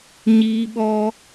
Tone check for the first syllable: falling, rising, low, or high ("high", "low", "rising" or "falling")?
high